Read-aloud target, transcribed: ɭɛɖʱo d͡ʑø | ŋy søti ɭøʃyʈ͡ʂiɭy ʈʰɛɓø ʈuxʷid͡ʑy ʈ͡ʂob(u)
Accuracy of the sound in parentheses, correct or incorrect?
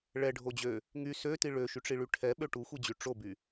incorrect: y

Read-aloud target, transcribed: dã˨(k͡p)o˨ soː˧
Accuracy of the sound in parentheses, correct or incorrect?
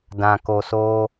incorrect: k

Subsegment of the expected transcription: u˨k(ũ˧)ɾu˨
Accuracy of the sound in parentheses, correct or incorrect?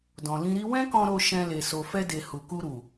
incorrect: u˧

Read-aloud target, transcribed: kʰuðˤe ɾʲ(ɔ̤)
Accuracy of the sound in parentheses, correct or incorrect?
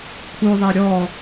incorrect: ɔ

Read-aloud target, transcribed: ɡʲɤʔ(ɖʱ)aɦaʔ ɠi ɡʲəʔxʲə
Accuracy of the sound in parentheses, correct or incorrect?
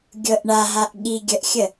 incorrect: ɳ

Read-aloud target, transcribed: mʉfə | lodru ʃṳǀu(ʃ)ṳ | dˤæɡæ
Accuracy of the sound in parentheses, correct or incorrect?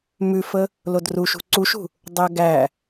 correct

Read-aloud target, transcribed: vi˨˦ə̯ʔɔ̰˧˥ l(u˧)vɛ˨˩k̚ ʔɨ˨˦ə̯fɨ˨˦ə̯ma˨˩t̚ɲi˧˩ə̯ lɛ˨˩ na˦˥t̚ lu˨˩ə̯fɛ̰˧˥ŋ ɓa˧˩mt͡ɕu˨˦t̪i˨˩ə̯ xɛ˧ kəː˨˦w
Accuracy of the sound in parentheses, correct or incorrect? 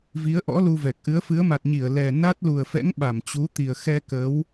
correct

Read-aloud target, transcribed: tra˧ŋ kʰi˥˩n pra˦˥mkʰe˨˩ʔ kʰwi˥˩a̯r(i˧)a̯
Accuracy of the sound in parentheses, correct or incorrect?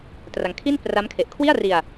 correct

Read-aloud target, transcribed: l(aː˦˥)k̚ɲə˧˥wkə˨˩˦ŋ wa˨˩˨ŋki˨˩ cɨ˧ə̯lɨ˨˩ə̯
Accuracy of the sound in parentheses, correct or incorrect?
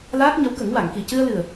correct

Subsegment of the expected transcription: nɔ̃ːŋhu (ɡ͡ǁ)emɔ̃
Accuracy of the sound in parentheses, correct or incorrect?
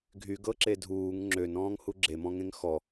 correct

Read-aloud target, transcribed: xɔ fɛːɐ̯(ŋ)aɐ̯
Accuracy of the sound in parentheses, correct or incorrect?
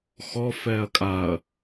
incorrect: kʼ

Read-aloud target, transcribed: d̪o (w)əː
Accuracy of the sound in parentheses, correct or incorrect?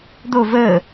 incorrect: v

